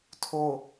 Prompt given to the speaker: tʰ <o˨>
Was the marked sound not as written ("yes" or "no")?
no